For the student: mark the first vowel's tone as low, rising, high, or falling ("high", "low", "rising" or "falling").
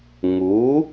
rising